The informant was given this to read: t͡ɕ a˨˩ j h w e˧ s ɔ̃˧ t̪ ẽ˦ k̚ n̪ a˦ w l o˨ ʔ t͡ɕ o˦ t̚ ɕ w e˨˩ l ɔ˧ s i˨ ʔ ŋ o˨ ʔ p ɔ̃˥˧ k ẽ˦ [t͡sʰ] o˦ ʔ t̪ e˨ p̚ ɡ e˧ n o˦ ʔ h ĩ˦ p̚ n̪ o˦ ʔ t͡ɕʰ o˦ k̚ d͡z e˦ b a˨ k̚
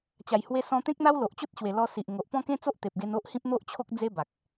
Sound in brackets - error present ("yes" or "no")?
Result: yes